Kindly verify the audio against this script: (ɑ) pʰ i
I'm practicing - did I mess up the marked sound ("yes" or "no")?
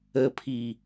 yes